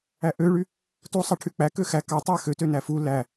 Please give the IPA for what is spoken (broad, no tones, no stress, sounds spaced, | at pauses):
æ ʔ ø ɭ y | t u sˤ ɑ ʈʰ y k͡p æ k ø x æ k ɑ tˤ æ x ø t ø n æ f u l æ